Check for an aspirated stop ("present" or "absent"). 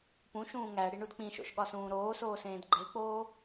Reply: absent